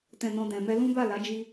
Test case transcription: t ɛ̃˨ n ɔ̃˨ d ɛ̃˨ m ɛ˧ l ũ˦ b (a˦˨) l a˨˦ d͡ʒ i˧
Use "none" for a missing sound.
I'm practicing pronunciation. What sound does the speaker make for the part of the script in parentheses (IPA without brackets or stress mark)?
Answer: a˦˨